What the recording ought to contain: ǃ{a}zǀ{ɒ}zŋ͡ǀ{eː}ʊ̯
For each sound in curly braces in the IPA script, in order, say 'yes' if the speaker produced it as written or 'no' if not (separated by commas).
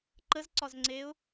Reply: no, yes, yes